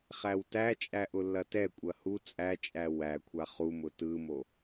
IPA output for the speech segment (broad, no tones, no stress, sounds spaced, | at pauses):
χ æ w t æ t͡ʃʼ æ ʔ ʊ lː ɐ t ɛ kʷʼ ɐ h u t͡sʼ æ t͡ʃʼ æ w æ kʷʰ a χ u m ʊ t ɯ m o